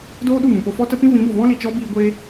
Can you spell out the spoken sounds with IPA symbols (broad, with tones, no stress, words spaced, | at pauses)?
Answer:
doː˦ɗu˦˨mũ˨po˧ fɔ˦ tə˧ pĩ˦vĩ˨˦bo˨ vɔ̃˦li˨t͡ʃɔ˦biː˧ ɡʷe˦